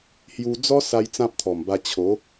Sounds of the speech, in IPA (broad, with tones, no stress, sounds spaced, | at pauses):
h j u˧ d͡z ɔ˦ s a˧ j t͡s ã˦ p̚ t̪ʰ ɔ˨˩ m b a˧ t͡ɕʰ o˨˦